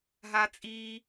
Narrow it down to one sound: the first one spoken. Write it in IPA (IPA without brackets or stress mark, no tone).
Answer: ɦ